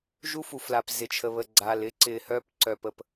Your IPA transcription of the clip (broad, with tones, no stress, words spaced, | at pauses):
ʒu˦fu˨fla˨p zɪ˨t͡ʃʰə˨βə˨ ɡ͡ǀa˨lɪ˦ǀɪ˨ hœ˦pǀœ˨ pə˨p